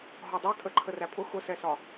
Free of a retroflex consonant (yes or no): yes